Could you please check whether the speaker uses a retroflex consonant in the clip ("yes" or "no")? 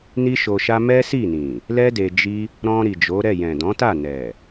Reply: no